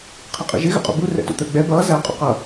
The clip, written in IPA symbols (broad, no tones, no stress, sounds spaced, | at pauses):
qʰ ɪ qʼ ḭ ʒ ɪ ɣ ə̰ qʼ ṵ b u r ɛ̰ t ṵ t̪ ə˞ ɡ͡b ɛ b ʌː z æ qʼ ṵ q ʌ